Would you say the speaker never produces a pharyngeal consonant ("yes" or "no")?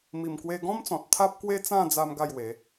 yes